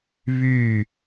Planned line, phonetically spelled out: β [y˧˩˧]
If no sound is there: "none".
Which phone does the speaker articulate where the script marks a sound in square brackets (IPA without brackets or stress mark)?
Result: y˨˩